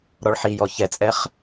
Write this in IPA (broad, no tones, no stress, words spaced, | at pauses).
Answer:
ɾɔɭħijɔ çɛt͡sʼɛχ